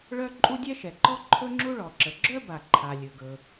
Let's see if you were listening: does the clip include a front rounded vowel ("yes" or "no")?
yes